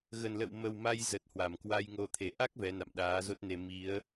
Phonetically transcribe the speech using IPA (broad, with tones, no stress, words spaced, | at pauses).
ɣə˨˩nlə̰˧˨w mə˨˩wma˧j zə˨˩t̚hwa˧˩mkwa˧j ŋo˨˩t̪ʰe˧˩ ʔa˦˥k̚ vɛ˨˦na̰˧˨m ɗaː˨˦zo˦˥t̚ne˧ mi˨˦ə̯